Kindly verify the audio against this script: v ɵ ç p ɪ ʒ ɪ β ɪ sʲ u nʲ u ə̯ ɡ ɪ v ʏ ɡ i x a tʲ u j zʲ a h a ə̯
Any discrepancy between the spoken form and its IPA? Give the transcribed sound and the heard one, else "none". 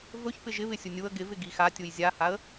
ʏ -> ɪ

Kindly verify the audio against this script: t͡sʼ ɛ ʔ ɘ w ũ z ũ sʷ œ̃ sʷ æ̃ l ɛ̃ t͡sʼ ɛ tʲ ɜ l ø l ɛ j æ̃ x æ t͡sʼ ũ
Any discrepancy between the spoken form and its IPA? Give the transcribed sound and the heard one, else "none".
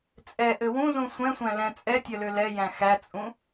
œ̃ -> ɛ̃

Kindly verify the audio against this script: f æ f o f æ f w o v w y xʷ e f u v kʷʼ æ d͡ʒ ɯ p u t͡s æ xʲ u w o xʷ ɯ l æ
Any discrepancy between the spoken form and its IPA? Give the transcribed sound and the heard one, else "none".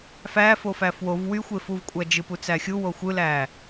none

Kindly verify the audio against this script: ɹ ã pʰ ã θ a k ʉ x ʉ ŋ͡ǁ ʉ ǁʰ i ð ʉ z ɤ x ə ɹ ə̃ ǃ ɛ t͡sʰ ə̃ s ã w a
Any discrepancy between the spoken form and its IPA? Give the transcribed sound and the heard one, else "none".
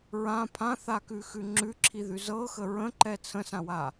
none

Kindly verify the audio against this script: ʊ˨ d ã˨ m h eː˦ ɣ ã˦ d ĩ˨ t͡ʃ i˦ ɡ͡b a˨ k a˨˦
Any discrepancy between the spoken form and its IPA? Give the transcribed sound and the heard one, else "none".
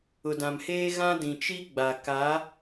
none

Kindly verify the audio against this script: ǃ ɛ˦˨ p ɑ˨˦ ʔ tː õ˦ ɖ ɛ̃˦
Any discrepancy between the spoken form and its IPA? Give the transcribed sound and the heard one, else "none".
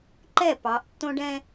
none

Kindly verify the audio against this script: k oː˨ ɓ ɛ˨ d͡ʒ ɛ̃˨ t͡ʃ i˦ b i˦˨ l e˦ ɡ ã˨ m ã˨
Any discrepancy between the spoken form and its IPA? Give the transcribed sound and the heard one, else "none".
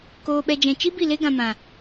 none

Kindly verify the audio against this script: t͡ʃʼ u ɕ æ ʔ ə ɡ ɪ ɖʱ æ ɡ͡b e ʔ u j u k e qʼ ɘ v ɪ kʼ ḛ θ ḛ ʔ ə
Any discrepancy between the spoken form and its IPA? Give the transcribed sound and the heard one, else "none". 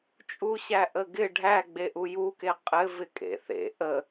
none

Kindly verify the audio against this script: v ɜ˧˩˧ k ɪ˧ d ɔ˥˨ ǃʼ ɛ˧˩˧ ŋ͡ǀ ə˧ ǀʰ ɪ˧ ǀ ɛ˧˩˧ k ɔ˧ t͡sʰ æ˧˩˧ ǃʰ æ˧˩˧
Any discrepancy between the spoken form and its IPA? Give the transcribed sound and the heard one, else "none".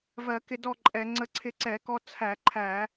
none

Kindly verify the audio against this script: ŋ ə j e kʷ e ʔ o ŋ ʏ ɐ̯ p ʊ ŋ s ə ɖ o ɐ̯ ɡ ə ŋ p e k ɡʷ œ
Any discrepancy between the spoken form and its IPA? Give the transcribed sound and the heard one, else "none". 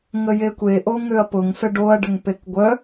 ɡ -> ɖ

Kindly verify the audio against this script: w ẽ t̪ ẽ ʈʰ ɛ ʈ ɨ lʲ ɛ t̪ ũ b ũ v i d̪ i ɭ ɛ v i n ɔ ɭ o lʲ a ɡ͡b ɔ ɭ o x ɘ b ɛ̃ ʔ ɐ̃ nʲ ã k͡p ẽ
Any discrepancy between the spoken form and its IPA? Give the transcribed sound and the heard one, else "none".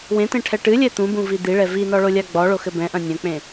ã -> ɐ̃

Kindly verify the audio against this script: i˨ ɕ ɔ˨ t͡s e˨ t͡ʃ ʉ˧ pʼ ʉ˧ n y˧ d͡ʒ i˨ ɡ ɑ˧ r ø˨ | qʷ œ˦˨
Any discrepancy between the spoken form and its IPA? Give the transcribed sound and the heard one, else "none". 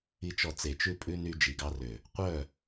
ɕ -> t͡ʃ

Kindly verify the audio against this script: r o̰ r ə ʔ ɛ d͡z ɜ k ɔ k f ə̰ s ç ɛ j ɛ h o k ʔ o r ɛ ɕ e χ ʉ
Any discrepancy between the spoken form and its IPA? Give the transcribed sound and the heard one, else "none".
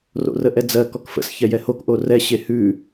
χ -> h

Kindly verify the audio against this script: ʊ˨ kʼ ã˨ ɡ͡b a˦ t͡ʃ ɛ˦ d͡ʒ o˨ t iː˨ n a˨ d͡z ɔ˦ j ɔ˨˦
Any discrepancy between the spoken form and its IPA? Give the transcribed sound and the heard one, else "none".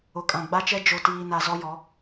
d͡z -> z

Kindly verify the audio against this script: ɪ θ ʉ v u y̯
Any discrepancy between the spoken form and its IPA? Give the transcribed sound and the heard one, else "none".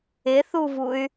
ʉ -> u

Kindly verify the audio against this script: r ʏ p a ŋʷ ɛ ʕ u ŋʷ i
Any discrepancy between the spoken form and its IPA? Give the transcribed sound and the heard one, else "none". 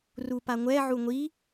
ʏ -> u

